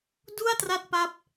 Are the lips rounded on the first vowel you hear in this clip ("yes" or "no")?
yes